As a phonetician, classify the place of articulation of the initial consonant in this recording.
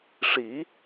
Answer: retroflex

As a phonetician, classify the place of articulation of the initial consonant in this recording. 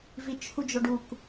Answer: labial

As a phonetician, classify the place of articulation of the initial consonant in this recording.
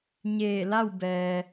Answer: palatal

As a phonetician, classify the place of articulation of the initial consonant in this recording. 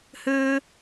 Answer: glottal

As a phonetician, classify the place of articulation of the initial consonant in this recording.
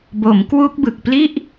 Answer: labial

